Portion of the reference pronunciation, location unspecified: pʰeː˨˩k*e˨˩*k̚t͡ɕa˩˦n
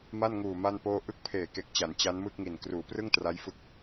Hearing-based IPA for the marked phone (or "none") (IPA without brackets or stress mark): e˨˩